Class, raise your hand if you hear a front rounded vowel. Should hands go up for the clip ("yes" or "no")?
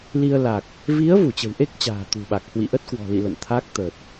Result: no